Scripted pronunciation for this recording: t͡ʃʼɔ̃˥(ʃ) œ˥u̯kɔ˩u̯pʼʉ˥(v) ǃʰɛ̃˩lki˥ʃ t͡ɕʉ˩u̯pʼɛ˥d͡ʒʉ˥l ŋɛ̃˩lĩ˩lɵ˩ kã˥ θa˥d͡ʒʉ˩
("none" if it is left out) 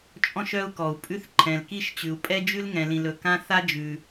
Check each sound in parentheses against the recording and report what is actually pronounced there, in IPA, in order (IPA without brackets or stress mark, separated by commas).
ʃ, θ